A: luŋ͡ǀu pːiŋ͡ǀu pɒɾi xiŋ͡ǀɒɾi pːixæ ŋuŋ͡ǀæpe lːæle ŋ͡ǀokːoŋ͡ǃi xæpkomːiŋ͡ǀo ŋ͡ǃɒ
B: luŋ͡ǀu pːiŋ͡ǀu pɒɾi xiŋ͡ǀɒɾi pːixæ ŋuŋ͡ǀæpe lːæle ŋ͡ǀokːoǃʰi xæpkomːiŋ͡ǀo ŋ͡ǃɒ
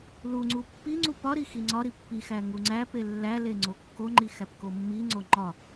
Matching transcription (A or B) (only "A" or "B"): A